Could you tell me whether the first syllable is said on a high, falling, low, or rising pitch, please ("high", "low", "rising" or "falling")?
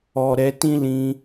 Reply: low